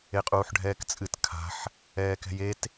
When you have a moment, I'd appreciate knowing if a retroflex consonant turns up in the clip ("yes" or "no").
yes